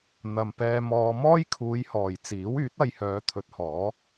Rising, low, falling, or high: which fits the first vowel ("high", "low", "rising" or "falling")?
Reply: low